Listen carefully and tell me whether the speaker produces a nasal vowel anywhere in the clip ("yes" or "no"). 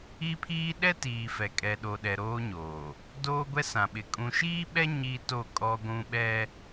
yes